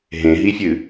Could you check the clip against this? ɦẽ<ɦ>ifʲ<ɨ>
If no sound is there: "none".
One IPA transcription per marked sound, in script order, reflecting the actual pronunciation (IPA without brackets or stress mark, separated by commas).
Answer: ɦ, ɨ